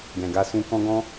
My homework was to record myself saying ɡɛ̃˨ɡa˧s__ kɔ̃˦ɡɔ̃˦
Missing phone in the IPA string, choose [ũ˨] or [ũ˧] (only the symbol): ũ˧